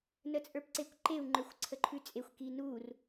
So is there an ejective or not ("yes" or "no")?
yes